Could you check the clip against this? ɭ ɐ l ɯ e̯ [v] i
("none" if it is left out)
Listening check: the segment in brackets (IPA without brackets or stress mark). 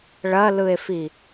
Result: f